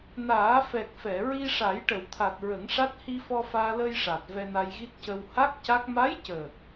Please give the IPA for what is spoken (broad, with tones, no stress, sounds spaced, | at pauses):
n aː˨˩˦ f ɛ˨˩ k̚ f ɛ˨˩˨ ɹ i˧ ʂ a˨˩˦ j ʈ ə˨˩˨ w t̪ʰ a˨˩ t̚ ɹ ə˨˩˦ ŋ ʂ a˦˥ t̚ h i˧ f ɔ˧ f aː˧ l əː˧ j ʂ a˨˩ t̚ v ɛ˧ n a˧ j ɣ i˦˥ t̚ c ə˧ w h a˦˥ k̚ c a˦˥ k̚ m a˧˥ j c əː˨˩ k̚